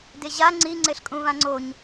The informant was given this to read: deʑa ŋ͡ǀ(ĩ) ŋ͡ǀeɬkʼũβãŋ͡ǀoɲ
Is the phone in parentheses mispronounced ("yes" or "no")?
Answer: yes